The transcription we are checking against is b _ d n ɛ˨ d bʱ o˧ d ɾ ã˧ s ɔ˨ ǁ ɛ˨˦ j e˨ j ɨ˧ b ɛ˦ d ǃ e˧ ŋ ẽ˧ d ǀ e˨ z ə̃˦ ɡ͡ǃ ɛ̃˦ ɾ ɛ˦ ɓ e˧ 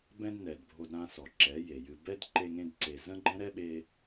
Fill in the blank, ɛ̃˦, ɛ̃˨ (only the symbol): ɛ̃˦